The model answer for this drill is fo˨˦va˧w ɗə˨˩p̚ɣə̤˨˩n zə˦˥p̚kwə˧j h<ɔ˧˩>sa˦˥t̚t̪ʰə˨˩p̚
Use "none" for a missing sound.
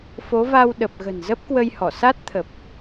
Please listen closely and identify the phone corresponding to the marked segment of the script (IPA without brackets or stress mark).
ɔ˧˩